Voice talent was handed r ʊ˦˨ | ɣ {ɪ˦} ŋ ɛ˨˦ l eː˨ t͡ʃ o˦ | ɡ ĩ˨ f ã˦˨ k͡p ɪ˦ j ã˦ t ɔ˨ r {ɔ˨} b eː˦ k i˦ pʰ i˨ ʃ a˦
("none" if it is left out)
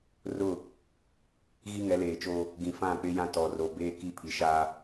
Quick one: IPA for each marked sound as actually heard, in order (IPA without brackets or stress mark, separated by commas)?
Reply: i˦, o˨